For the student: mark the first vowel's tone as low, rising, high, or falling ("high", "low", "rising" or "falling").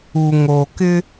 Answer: low